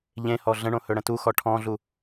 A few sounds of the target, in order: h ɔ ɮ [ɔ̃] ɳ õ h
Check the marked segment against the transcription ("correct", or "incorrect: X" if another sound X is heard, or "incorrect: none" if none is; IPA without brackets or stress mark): incorrect: ə̃